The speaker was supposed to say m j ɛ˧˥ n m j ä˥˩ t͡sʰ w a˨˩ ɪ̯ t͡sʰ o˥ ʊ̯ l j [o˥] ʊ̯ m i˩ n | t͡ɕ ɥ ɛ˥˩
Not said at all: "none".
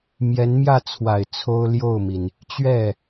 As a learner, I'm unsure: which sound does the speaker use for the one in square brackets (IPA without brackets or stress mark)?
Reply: o˥˩